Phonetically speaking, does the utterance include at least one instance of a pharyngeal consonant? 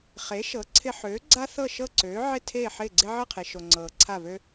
yes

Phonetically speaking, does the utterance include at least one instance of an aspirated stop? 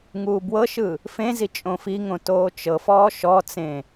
no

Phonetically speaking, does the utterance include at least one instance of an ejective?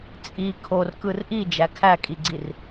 yes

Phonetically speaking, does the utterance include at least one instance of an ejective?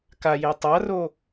no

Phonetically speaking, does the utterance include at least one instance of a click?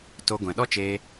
no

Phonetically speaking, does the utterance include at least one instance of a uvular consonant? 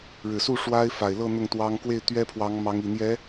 no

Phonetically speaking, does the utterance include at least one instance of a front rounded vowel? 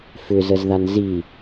yes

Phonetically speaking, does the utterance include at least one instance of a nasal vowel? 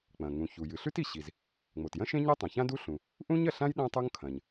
yes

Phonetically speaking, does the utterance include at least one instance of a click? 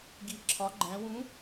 yes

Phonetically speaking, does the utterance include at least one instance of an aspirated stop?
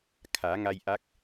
yes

